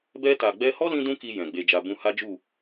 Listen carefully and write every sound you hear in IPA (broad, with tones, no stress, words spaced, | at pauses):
bɛ˧ta˨ɡ͡bɛ˧hɔ˦ lĩ˦dũ˦ki˧ jɛ̃˨ɡ͡be˧d͡ʒa˧ bũ˧ha˦d͡ʒu˦˨